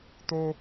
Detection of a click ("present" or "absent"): absent